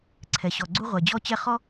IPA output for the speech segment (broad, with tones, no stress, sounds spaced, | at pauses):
ǀʰ ɛ˨ ɕ ɔ˨ ɡ͡ǀ u˥ ʁʷ ɛ˨ d͡ʑ ɔ˥ t͡ɕ ɛ˥ χ ɔ˥